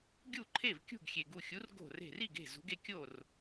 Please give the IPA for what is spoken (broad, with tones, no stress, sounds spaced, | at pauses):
ɡʲ u˥˩ ǃʰ e˥˩ v kʲ ṳ˥˩ ɡ xʲ e˩ ɡ u˧˩ xʲ u˨˥ r ɡ o̤˧˩ r e̤˧˩ r i˥˩ ɡ e̤˥˩ z ṳ˨˥ ɡ e˧ kʲ o˥˩ r